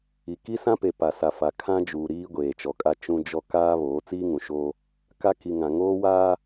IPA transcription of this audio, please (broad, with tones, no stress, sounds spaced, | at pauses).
i˨ k i˦ s ã˦ p e˨ p a˨ s a˨ f a˨ kʰ ã˦ d͡ʒ uː˨ ɾ iː˦ ɡʷ eː˨ t͡ʃ ɔ˨ kʼ a˦ t͡ʃ ũ˦ d͡ʒ ɔ˦ k aː˦ β oː˨˦ t͡s iː˦ ŋ ũ˨ ʃ oː˦ | k a˦ k i˨ ŋ ã˨ ŋ oː˦ w aː˦